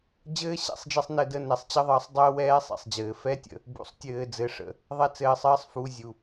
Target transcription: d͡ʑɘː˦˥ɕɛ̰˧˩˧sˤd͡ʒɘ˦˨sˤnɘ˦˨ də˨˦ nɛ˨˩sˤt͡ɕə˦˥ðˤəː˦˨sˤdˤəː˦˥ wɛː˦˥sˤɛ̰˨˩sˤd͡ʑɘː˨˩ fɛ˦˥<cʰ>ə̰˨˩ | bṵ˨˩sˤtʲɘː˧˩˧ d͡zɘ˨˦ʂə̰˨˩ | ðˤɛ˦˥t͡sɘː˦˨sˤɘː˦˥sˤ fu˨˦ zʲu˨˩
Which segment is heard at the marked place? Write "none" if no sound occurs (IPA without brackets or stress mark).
tʲ